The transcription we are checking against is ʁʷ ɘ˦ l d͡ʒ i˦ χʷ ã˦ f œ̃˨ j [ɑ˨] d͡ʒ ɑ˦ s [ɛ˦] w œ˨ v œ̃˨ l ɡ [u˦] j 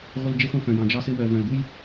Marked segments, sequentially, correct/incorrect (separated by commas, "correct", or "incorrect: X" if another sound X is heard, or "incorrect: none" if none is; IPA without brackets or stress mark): incorrect: ɑ̃˨, incorrect: ɘ˦, correct